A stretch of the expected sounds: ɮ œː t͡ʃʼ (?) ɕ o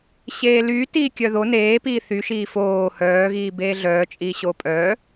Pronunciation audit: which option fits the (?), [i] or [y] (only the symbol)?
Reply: i